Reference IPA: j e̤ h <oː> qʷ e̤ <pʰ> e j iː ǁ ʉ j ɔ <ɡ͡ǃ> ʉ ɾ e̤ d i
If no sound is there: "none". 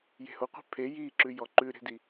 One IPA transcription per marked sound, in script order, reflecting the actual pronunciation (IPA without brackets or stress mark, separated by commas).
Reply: o, pʰ, ǃ